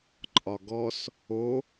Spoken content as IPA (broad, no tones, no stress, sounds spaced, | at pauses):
ǃʼ ɒ ɡ ɔ s | o